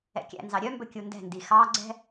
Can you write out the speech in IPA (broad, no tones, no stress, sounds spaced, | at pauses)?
ɛ̰ kʲ æ̰ n z ɑ ɾʲ œ m b ɵ kʲ u n d ɛ̤ n d i x ɑ ɡ͡ǀ ɛ̤